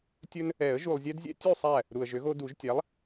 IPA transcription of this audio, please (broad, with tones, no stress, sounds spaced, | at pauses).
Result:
tʲ ɵ˦ n | ɛ˨˩˦ ə̯ ʒ u˨ lˠ zʲ ɛ˦ d zʲ ɛ̰˦ tʲ u˥˨ sˤ æ˥˨ | ɾ u˨ ə̯ ʒ ø˩˥ ɣ o˦ d u˨˩˦ ʒ tʲ æ˩˥ lˠ